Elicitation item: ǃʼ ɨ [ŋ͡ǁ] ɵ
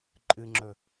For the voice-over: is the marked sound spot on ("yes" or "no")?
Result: yes